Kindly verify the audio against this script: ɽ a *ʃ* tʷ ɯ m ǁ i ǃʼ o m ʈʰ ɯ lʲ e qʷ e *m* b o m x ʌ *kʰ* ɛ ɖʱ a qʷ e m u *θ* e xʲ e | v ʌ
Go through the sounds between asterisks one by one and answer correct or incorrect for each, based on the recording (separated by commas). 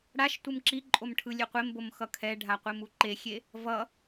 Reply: correct, correct, correct, incorrect